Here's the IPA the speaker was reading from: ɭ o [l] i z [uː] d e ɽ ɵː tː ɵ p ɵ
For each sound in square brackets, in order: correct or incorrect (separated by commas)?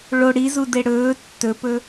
incorrect, incorrect